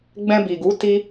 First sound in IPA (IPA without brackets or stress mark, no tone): ɡ͡b